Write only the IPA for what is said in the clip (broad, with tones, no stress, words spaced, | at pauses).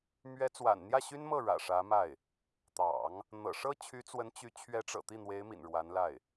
mɥɛ˧˥t͡swa̰˨˩n n̪jä˥˩ɕy˥nmɤ˥˩ ɻä̰˨˩ ʂä˧˥ma˥˩ɪ̯ | t̪ɑ̰˨˩˦ŋ | n̪ɤ̰˨˩ ʂɤ˥t͡ɕʰy˧˥t͡swə˧˥n t͡ɕy˧˥ t͡ɕʰɥɛ˧˥ʈ͡ʂɤ̰˨˩ t̪i˥˩n̪we˧˥ɪ̯mḭ˨˩n ɻwa˧˥nla˥˩ɪ̯